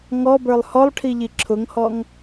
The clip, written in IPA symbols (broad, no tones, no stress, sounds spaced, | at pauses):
ŋ ɔ b ə˞ lˠ h ɔ lˠ ʈʰ i ʎ i ǁʰ ʊ ŋ h ɔ ŋ